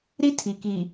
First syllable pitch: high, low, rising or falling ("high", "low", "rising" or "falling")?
high